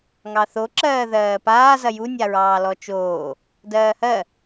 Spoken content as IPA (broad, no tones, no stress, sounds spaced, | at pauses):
ŋ ɑ θ o ǁ ɜː ð ɜː p aː z ɐ j u nʲ a ɹ ɑː l ɔ t͡ʃ oː | d ɜː h ɜ